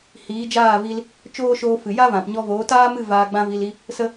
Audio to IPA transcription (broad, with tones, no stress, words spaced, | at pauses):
hiː˨˦d͡ʒaː˦˨vi˧l | t͡ʃoː˦ʃoː˧fɨ˨ ja˦vã˨pɲɔ˧voː˨˦ taː˦mɨ˦˨ vaː˧ɡ͡bã˦vi˧li˦ | sə˧